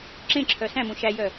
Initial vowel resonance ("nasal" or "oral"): nasal